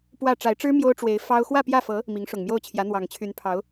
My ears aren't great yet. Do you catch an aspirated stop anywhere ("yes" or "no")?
yes